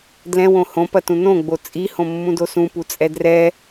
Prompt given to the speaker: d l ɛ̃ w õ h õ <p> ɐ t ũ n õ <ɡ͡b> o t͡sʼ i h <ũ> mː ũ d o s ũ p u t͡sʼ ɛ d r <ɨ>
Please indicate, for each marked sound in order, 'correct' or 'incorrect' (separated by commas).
correct, correct, incorrect, incorrect